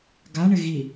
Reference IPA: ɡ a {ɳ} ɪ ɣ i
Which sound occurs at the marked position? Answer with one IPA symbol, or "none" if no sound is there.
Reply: ɳ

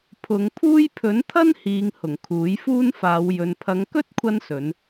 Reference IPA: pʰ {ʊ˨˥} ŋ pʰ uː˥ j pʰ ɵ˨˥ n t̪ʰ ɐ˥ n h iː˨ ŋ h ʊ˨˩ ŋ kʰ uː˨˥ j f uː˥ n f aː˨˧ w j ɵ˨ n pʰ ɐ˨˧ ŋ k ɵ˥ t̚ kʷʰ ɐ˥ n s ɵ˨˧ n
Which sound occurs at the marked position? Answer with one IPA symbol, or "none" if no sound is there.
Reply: ʊ˨˧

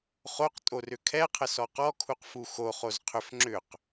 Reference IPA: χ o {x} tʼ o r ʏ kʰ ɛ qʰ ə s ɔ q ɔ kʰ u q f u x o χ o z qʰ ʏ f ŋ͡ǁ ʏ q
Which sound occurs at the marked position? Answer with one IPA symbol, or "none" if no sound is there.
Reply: q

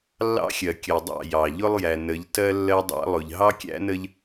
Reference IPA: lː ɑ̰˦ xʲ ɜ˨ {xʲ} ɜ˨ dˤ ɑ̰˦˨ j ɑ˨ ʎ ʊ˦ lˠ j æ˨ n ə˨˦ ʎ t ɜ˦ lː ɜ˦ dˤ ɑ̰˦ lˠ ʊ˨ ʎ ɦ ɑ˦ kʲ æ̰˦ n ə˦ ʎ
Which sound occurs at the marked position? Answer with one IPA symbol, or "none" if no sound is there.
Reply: kʲ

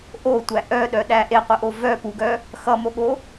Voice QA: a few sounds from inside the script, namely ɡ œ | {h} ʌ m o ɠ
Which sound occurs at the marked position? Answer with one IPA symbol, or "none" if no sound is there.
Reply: x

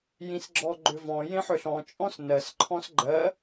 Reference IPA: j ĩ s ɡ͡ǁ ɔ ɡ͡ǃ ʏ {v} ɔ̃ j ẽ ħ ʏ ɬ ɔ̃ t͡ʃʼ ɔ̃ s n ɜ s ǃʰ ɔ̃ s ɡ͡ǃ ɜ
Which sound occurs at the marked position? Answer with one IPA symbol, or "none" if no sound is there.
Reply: v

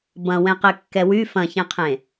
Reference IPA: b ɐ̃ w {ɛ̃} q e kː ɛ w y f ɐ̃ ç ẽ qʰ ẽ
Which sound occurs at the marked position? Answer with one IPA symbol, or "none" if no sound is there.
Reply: ɛ̃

